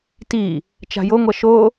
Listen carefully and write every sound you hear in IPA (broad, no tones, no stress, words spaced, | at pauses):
ti | t͡ʃa̤joŋʷʌ ʃo